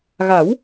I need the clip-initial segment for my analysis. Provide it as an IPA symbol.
ɣ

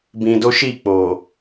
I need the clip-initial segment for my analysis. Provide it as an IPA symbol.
b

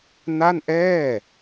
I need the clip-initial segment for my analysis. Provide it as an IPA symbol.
n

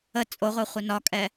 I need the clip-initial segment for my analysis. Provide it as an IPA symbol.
ə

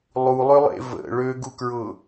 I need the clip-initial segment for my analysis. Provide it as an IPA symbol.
lˠ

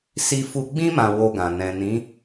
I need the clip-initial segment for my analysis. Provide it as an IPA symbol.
s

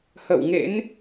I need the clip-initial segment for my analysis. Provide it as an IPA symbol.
h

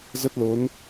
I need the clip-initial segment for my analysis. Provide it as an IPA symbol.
z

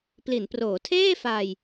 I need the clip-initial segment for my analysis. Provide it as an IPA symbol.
p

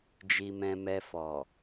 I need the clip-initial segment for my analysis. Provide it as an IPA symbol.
d͡ʒ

